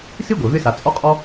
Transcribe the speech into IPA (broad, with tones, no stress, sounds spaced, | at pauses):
s i˥ ɡʷ e˩ v ɪ˥ s a˩ t͡sʼ ɔ˥ qʼ ɔ˥